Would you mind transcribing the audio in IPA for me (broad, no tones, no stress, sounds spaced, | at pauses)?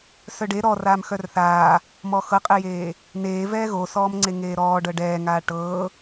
s œ ɖ e ɾ ɔ r aː m x œ r θ aː | m ɔ x ɤ qʼ e j eː | n eː v ɛː ɣ o s ɔː m ŋ͡ǀ e ŋ eː ɾ ɔː ɖ ɤ ɖ ɛː ŋ aː ʈ ɤː